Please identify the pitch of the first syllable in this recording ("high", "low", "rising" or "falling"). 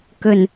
low